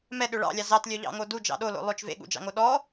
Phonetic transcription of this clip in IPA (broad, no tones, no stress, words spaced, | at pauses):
mɛɗø ɭɑ̰lʲɑ zɑtlʲœʎɑ̰ŋo dud͡ʒɑ̰ ɗolo̰ lˠøt͡ʃ vḛɠṵd͡ʒɑ̰ŋo ɗɔ